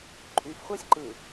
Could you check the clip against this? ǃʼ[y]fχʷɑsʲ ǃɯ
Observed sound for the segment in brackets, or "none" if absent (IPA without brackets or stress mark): y